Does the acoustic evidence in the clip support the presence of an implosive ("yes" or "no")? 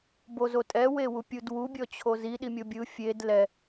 yes